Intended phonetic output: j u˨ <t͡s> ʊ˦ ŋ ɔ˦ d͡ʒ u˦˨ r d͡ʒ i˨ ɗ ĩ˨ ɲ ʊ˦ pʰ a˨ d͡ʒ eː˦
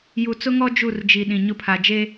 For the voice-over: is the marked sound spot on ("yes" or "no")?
yes